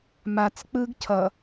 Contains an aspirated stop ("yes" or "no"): yes